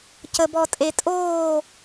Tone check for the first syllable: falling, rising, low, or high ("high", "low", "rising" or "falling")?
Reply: low